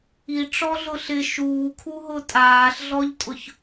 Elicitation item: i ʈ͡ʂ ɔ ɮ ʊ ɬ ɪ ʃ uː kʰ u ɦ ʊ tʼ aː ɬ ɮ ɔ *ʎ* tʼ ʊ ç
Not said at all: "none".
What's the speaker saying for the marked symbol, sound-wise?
ʎ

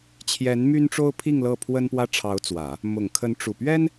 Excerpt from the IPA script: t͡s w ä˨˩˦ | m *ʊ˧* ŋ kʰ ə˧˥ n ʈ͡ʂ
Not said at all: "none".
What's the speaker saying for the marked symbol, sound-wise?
ʊ˨˩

